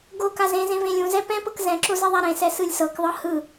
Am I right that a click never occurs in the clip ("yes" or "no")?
no